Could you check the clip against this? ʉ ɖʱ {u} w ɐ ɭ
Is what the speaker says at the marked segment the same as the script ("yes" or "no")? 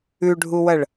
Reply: yes